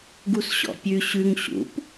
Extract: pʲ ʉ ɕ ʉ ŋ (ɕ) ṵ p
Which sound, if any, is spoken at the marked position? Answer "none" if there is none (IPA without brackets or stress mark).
ɕ